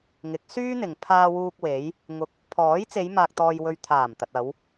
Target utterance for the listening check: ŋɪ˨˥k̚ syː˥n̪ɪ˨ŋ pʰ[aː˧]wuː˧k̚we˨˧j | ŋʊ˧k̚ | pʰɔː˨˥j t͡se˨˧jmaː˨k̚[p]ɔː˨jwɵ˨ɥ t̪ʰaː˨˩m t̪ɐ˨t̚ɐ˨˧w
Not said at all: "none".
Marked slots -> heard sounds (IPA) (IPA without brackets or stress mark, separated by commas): aː˧, t̪